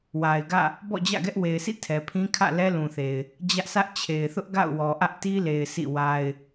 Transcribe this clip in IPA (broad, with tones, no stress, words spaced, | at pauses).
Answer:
wa˨ɪ̯ɡä̰˦˨ | bɔ̰˦˨d͡ʑä̰˦˨ɡɛ˦ʔ we˨ɪ̯sḭ˦˨ tʰɛ˨pʰĩ˦ kʰä̰˦˨lɛ˦lũ˨θe˨ɪ̯ | d͡ʑä˦ʔsä˦ʔ t͡ɕʰe˨ɪ̯θʊ˦ʔ ɡa̰˦˨ʊ̯wɔ˨ʔä˦ʔ ti˦le˨ɪ̯ sḭ˦˨wa˦ɪ̯